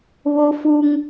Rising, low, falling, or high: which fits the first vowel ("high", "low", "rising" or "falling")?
high